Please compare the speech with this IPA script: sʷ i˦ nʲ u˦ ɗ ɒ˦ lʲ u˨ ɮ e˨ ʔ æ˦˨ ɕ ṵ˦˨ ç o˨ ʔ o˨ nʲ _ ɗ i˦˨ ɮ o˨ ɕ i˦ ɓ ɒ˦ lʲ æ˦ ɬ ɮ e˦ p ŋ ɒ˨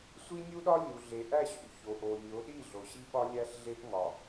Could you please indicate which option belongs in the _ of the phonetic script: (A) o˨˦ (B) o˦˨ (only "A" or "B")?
A